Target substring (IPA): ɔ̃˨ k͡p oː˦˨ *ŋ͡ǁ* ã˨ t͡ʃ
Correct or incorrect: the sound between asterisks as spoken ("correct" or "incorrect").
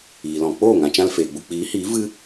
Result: incorrect